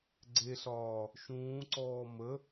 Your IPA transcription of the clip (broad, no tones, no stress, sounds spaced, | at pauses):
ɡ͡ǀ e ɬ ɒː | ʃ ũː ǀ ɔː m ə